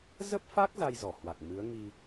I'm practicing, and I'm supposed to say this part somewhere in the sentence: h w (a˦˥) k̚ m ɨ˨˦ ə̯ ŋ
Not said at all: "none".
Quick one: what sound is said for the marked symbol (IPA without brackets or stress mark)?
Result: a˨˩